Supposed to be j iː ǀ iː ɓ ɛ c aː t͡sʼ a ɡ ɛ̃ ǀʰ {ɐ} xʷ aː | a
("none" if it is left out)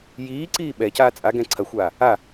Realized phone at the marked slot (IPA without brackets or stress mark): ɐ